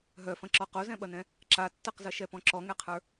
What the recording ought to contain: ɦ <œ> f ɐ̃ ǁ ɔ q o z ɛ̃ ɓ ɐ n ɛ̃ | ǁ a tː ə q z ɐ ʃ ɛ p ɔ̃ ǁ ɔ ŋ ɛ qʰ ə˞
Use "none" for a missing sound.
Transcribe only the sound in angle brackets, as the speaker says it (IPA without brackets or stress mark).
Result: œ